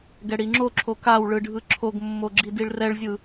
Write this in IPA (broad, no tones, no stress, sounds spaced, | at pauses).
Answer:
ɡ ɛ ɽ i ŋ͡ǁ o ǁʰ o k a w ɭ ɯ ɖʱ ɯ ǁʰ o ɡ mː o ɡ͡ǁ i d i ɭ r ɛ ɭ zʲ ɯ